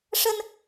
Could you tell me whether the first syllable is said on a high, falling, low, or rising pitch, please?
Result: high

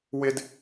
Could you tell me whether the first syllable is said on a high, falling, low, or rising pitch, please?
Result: high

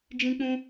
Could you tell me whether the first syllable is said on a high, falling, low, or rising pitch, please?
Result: high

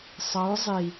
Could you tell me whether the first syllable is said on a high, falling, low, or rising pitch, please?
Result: rising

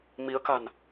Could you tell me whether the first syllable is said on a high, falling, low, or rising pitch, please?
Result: rising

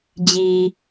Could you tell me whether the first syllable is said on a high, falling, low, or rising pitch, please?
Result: low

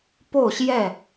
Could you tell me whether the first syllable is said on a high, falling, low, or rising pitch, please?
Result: falling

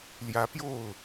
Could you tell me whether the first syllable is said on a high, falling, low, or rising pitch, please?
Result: rising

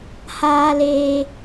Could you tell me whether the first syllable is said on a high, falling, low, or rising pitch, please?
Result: high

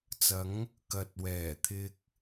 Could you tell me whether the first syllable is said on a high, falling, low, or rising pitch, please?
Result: rising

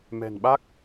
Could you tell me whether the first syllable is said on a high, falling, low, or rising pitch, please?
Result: low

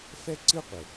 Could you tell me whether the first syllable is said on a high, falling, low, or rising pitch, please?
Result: high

